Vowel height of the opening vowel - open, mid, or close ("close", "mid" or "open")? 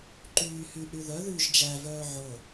close